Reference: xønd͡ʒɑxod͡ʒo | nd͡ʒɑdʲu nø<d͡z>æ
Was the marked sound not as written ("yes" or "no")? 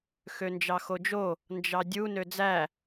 no